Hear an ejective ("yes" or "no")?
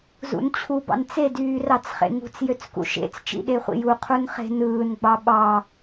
no